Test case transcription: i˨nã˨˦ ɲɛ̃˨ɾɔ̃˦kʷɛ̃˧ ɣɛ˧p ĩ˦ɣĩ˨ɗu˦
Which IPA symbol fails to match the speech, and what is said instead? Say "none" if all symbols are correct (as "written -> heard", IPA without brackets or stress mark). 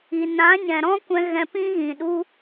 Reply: ɛ˧ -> ɛ̃˧